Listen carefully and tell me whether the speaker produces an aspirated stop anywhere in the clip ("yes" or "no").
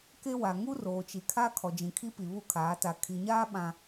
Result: yes